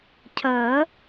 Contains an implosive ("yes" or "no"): no